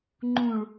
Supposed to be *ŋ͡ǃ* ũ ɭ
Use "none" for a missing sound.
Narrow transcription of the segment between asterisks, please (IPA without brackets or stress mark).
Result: ŋ͡ǃ